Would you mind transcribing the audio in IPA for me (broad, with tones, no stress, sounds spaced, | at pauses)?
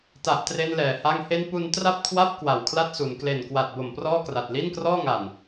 t a˨˩ ʔ t r e˧ n l ɛː˨˩ h a˧ ŋ h e˦˥ n p u˧ n t r a˥˩ p̚ kʰ w a˥˩ p̚ k w a˨˩ w kʰ l a˥˩ t̚ s u˩˦ n k l e˨˩ n k w a˨˩ t̚ b o˨˩ m p r ɔː˥˩ k r a˨˩ t̚ l i˥˩ n k r ɔː˥˩ ŋ a˨˩ n